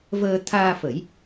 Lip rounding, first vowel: unrounded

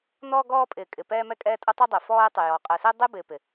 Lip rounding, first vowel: rounded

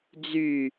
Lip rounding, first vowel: rounded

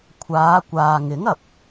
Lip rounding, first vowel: unrounded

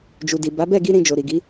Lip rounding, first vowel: rounded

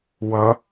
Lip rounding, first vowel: unrounded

